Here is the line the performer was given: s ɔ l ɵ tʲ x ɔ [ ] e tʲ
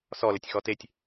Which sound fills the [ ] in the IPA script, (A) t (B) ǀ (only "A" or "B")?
A